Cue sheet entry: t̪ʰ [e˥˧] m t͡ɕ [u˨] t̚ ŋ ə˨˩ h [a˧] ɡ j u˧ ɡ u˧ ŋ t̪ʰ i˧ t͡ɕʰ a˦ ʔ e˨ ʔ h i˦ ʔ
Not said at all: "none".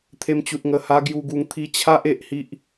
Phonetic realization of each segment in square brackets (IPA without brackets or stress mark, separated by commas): e˧, u˨, a˧